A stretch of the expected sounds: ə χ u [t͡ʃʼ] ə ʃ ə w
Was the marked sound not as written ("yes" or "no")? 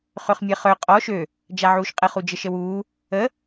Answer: yes